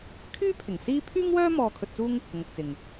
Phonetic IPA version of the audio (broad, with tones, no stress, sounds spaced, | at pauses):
kʰ yː˥ pʰ ɪ˨˩ ŋ s iː˥ pʰ yː˥ ŋ w œː˥ m ɔː˧ kʰ ɵ˧ t̚ t͡s uː˥ ŋ | ŋ ʊ˨ k̚ t͡s ɪ˨ ŋ